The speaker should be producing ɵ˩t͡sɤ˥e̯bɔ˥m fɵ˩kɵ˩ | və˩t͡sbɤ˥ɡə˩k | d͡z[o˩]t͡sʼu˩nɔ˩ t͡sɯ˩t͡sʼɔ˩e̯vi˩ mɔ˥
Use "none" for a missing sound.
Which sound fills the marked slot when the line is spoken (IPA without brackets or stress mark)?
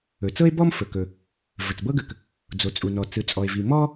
o˩